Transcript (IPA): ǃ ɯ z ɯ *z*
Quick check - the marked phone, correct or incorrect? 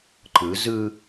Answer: incorrect